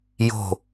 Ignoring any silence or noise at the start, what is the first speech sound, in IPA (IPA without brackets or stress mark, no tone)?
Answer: j